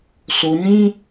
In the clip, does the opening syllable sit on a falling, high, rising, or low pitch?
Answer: low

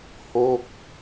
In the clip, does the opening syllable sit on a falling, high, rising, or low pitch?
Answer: falling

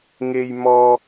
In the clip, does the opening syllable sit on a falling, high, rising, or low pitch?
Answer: high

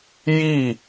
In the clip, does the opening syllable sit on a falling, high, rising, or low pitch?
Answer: falling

